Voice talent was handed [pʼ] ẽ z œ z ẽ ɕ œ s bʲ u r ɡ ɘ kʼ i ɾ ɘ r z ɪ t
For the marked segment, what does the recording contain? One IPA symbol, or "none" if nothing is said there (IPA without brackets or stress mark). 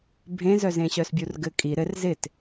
bʱ